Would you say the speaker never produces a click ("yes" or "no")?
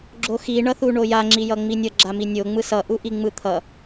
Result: no